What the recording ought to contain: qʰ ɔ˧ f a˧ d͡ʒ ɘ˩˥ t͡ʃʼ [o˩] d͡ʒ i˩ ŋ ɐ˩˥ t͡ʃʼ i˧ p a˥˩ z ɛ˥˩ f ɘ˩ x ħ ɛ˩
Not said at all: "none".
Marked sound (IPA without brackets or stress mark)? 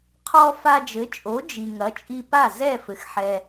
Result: o˩˥